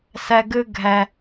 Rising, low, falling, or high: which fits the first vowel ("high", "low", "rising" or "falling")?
low